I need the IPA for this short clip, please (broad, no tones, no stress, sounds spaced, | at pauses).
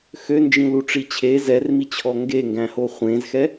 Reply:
x ø n d͡ʒ ĩ l u ʈ͡ʂ i t͡ɕʰ e z ɛ r m i t͡ɕʰ ɔ ŋ ɡ e ŋ ɡ æ̃ h o χʷ ẽ z x ɛ